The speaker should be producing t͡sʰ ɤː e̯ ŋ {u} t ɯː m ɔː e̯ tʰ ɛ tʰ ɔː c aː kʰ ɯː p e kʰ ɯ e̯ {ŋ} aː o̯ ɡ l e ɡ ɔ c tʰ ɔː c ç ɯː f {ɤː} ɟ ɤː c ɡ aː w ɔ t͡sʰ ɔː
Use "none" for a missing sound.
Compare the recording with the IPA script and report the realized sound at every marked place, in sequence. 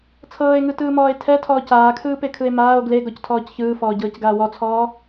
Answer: ɯ, m, ɔː

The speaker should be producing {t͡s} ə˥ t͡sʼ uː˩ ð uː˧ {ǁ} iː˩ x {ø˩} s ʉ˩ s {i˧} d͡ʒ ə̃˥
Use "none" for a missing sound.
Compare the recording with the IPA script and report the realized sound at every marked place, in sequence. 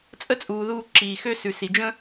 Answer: t͡sʼ, ǁ, ø˥, i˩

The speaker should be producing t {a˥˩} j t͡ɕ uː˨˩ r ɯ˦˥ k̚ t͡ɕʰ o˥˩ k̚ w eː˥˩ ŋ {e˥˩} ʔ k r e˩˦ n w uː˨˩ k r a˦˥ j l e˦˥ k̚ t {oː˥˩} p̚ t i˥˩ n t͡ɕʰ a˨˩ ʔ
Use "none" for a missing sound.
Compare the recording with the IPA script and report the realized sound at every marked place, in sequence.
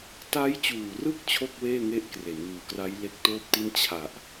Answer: a˦˥, e˦˥, oː˥˩

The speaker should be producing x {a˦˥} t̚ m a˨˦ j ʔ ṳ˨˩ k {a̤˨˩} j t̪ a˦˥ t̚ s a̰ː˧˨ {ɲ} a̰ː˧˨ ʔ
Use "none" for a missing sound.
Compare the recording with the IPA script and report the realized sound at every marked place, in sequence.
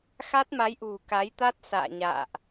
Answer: a˦˥, a˨˦, ɲ

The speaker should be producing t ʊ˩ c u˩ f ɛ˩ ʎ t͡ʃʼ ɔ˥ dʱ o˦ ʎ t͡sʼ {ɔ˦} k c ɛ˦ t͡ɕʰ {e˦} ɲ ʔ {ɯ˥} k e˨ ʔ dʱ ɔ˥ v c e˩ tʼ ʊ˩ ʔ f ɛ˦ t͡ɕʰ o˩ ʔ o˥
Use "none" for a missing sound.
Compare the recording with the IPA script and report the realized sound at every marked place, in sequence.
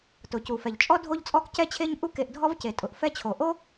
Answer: ɔ˦, e˦, u˥

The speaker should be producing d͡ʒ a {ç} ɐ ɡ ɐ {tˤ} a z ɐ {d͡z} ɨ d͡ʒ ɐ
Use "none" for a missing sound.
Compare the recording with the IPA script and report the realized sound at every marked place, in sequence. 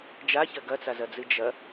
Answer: ç, t͡s, d͡z

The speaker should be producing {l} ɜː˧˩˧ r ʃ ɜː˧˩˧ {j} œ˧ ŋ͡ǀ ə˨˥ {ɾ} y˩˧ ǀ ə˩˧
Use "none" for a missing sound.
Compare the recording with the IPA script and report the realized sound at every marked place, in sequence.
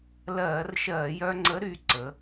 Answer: l, j, ɾ

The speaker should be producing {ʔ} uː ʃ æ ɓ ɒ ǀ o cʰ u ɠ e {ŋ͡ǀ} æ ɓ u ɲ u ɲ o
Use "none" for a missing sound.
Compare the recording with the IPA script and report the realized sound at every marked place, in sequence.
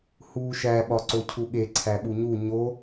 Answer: h, ǀʰ

